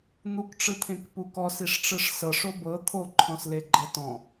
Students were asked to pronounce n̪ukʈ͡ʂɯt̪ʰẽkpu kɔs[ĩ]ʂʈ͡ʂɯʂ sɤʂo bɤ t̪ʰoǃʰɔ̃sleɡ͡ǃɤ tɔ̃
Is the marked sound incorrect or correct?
incorrect